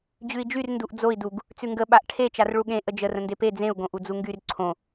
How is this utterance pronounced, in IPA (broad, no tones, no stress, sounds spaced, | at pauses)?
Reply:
d͡ʑ ʉ i̯ d͡ʒ y r n d u ʔ d͡z o i̯ d u ɡ | t͡s ʉ ŋ ɡ ə ɓ a ʔ ʈʰ e t͡ʃ a r ɭ u ɠ ẽ ʔ ə d͡ʒ ə r ə̃ n d e p e d͡z ẽ u̯ ɡ õ ʔ u d͡z u ŋ ɡ y r ǀʰ õ